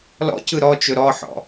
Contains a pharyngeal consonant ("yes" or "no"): yes